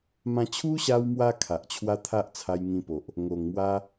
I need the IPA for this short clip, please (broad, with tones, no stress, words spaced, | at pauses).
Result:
mã˧ t͡ɕʰu˦ɕa˧wmwa˧ kʰa˨ʔt͡ɕʰwa˦ t̪ʰa˦ʔt͡sʰa˧j ŋĩ˧po˨ʔ | ŋo˨˩ŋmwa˦